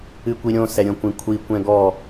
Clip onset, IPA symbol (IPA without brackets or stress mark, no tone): ɨ